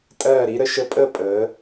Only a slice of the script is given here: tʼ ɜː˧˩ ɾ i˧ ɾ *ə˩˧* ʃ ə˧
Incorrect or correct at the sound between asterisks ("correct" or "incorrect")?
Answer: correct